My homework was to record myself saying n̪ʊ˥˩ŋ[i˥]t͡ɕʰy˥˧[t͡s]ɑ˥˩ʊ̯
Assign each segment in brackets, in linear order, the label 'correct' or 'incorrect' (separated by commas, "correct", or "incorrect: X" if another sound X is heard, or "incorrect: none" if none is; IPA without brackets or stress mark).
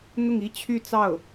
correct, correct